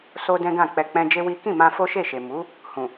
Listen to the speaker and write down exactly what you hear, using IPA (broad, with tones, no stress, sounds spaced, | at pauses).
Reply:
s o˦ d ɛ̃˦ ɡ ã˦˨ k͡p ɛ˧ k͡p ɛ̃˦ d͡ʒ e˦ w i˦ k ĩ˦˨ m ã˧ f o˦ ʃ e˦˨ ʃ e˨ m u˨˦ | h ũ˨